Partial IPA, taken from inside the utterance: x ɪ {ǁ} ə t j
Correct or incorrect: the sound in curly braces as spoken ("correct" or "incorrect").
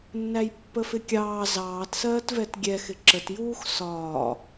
correct